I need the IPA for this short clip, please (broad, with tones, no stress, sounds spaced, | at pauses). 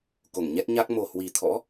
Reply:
k o˧˩ ŋ ɲ ɛ˦˥ t̚ ɲ a˦˥ k̚ m o˨˩ h w i˨˩ t̪ʰ ɔ̰˧˥